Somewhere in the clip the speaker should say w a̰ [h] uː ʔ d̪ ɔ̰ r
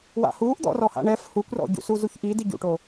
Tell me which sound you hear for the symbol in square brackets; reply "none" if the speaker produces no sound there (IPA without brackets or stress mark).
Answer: h